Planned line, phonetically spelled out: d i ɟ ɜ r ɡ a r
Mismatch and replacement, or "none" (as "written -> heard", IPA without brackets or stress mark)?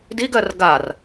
ɟ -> ɡ